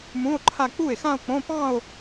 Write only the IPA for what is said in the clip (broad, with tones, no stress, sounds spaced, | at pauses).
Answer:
m ũ˧˥˧ o̯ ǃʰ a˥˧ k͡p u˥˩ e̯ x ã˥˧ o̯ k͡p õ˧˥˧ p ɑ̃˥˧ o̯